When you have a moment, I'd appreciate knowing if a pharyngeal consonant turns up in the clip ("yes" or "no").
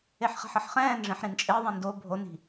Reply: yes